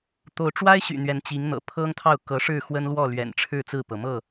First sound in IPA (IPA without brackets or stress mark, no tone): t̪